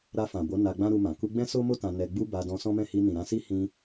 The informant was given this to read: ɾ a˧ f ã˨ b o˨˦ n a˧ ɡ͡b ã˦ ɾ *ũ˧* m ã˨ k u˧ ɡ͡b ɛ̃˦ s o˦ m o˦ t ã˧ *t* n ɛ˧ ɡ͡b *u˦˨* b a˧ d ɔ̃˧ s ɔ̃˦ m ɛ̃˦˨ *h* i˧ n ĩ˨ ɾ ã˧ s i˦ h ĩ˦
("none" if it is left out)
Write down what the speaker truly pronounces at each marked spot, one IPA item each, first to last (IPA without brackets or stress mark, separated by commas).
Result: u˧, none, u˦, h